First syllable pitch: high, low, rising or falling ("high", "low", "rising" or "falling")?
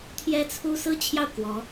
high